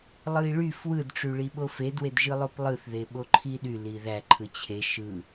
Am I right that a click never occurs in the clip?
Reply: no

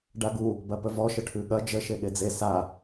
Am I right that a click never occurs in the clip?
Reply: yes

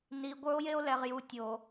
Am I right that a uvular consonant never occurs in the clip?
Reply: no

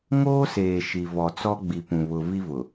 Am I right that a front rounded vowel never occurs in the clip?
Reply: yes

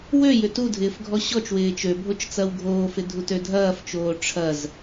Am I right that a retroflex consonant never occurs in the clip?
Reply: no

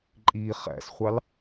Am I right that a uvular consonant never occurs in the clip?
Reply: no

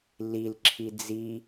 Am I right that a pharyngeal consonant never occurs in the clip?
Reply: yes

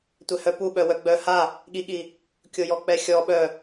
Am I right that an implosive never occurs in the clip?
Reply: no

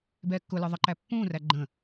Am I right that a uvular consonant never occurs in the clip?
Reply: yes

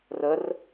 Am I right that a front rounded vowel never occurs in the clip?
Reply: yes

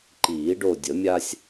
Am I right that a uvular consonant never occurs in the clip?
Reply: yes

